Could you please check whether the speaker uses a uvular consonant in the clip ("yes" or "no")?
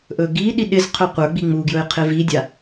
yes